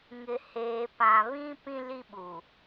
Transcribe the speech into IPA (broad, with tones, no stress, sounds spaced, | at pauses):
ŋ ɪ˨ h eː˨ p ã˨ β ĩ˦ p ĩ˦ l i˦ ɓ u˨